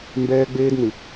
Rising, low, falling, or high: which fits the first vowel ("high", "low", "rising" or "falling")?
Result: high